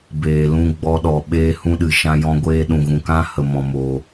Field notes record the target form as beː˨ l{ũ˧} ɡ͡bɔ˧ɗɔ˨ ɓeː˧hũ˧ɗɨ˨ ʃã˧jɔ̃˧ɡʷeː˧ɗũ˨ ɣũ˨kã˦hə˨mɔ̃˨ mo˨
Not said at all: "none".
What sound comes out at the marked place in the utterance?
ũ˧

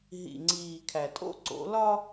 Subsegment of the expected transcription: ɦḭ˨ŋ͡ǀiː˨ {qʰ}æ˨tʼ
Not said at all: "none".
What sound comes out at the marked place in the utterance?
kʰ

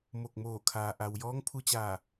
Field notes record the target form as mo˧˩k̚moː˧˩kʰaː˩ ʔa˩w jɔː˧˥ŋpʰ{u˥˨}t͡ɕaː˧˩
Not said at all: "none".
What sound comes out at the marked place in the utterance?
u˧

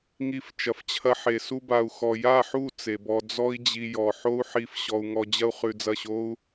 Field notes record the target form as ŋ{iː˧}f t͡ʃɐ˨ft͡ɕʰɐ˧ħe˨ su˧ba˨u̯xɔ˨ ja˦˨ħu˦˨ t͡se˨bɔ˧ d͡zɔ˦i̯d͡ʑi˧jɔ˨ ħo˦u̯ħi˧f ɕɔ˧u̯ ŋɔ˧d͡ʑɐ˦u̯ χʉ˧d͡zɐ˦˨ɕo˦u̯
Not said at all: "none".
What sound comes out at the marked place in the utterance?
i˧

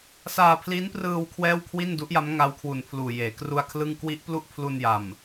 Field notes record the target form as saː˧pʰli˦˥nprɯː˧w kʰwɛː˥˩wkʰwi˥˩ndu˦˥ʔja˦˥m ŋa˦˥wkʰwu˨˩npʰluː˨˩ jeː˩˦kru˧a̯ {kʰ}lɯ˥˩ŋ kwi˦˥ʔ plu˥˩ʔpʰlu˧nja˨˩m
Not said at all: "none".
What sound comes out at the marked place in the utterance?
kʰ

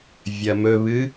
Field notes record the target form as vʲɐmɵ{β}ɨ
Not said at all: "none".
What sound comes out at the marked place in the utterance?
β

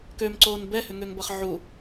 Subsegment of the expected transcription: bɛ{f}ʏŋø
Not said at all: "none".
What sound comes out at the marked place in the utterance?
h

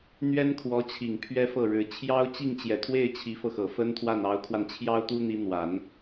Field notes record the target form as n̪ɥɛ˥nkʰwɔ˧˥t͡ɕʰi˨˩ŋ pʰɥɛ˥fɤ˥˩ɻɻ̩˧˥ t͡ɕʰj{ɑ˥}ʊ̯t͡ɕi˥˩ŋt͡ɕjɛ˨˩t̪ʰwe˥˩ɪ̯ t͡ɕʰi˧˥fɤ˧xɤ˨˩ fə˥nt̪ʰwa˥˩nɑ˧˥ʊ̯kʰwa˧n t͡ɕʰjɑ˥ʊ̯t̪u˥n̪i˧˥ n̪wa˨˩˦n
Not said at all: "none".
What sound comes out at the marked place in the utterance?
ɑ˥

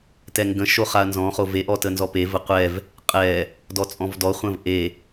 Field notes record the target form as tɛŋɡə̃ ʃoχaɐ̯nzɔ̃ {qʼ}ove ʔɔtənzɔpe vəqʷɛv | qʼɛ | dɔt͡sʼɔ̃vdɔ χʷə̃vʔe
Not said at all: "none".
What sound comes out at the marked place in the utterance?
χ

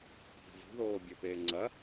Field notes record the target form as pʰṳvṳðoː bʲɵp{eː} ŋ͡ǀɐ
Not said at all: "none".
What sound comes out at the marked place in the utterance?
eː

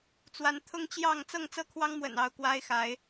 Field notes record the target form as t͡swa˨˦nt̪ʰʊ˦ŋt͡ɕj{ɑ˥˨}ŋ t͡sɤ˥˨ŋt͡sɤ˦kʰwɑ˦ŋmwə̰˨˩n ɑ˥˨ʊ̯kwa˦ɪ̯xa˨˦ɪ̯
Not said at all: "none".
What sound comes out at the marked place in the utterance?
ɑ˥˨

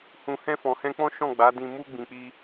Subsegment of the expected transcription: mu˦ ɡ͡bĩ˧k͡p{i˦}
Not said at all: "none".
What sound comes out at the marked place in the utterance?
i˦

